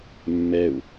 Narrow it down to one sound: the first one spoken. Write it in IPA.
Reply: mː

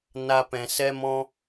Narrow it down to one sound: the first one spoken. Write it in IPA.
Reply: n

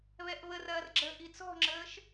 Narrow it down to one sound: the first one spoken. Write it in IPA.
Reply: β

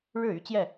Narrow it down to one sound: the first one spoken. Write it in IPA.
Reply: ɻ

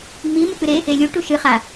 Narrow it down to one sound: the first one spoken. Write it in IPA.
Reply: ŋ͡m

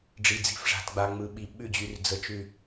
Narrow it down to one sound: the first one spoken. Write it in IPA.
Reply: ɖ͡ʐ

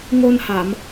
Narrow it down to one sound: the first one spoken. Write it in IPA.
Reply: ŋ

